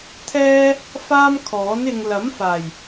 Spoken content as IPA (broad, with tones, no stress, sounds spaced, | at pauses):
t̪ʰ ɛː˥ | f aː˥ m kʰ ɔː˨˥ n ɪ˧ ŋ l ɐ˨˥ m f aː˨˩ j